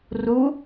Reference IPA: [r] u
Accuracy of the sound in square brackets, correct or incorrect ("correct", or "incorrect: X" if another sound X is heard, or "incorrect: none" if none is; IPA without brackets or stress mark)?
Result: correct